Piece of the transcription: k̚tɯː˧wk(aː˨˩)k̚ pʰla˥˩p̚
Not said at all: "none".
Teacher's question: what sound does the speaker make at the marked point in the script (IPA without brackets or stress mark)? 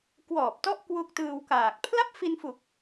aː˨˩